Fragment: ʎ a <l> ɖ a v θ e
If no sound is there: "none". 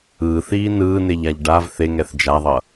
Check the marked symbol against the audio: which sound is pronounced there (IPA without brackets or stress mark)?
ʎ